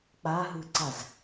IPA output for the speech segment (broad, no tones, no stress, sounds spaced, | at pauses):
k͡p a ɦ ɯ ǀ a z